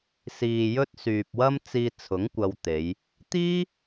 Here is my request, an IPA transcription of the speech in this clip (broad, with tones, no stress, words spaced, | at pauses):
siː˨jɵ˥t̚syː˨p̚ wɐ˥mt͡siː˧t͡sʰʊ˨˥ŋ kʷɐ˧wt̪e˨˧j | t̪iː˥